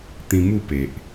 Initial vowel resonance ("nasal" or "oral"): nasal